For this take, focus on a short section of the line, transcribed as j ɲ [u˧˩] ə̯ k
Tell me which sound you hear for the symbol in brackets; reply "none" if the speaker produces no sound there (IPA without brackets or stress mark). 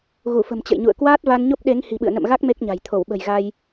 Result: ṵ˧˨